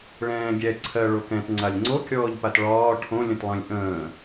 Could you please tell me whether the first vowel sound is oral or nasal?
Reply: nasal